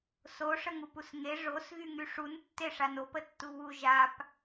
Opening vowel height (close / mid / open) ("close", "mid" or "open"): mid